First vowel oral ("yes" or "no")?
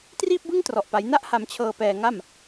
yes